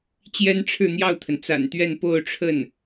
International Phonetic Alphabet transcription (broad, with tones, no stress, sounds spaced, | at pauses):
t͡ɕ j ɛ˥ n ʈ͡ʂʰ ɻ̩˥˧ n̪ j ɑ˥˩ ʊ̯ t̪ʰ ə˩ n t͡s a̰˨˩ n t̪ ɥ ɛ˥˧ n p o˥˧ ʊ̯ ʈ͡ʂʰ ə˥˩ n